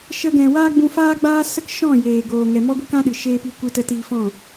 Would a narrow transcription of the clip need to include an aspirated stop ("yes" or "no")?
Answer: no